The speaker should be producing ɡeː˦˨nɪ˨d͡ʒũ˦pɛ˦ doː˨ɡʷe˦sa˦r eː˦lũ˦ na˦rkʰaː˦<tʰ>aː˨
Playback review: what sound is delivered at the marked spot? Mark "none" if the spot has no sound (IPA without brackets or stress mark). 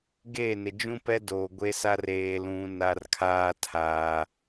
tʰ